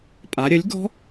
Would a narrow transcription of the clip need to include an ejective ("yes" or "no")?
yes